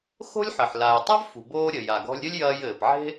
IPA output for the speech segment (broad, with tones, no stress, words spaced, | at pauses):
xo̤˥lʲħɘ˩ħ la˩j tˤa˥vfṳ˩boː˧ɾʲɘ˩ ja˩ɡɔ̤˧lʲɾʲɘ˥lʲ jɐː˧jɘː˩p ʕe̤˥